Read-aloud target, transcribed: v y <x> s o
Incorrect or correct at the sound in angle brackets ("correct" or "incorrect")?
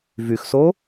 correct